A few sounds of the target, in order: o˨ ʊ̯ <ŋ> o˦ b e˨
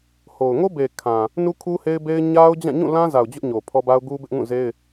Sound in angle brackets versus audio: correct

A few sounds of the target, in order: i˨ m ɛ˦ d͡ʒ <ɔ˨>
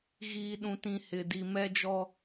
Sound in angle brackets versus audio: incorrect: ɔ˦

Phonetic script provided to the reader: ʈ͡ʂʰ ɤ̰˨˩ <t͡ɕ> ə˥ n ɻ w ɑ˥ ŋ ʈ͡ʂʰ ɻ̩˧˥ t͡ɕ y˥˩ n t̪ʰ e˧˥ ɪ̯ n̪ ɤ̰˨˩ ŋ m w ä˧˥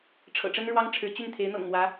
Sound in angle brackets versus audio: incorrect: ʈ͡ʂ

